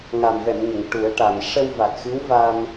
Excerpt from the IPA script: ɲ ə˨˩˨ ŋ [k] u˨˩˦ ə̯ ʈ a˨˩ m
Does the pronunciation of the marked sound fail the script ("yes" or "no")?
yes